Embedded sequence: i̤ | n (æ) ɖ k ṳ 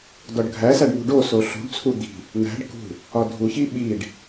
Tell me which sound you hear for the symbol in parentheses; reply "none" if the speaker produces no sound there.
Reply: æ̤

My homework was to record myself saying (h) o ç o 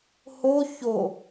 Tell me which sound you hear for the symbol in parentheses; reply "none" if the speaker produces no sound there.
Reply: h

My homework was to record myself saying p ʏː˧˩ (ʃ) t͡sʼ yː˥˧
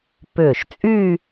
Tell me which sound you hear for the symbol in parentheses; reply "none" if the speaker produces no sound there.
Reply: ʃ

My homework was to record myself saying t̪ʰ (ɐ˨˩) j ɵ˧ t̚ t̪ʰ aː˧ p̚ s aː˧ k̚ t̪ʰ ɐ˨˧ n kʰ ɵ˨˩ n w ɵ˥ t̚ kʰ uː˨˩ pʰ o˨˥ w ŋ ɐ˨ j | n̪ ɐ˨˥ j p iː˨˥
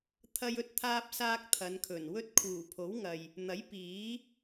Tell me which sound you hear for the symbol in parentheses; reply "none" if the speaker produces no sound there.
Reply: ɐ˧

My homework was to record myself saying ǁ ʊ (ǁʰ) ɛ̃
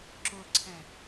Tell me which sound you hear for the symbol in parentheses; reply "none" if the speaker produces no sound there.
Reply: ǀʰ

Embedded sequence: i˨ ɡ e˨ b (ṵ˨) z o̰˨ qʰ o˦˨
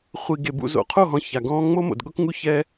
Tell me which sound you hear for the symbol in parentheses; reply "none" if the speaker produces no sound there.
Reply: ṵ˨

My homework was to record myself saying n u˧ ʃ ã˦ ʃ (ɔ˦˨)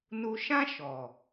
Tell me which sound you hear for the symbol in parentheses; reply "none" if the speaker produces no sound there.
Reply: ɔ˨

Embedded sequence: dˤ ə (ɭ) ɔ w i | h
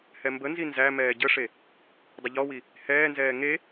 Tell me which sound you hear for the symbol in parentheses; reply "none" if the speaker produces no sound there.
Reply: ʎ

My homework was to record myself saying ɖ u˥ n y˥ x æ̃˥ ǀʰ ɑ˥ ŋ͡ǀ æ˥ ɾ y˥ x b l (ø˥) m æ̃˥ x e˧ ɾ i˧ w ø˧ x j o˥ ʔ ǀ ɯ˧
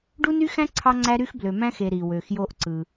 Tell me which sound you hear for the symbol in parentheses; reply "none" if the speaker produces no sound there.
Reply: ø˧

